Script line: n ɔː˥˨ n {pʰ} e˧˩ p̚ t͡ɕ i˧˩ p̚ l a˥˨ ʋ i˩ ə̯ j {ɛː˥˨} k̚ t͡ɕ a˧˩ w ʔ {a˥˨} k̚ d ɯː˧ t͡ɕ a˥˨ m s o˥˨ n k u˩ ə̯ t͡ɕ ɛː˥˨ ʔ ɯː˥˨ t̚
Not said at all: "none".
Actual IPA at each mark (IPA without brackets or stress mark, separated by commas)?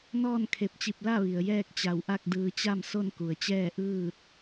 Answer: kʰ, ɛː˥˨, a˥˨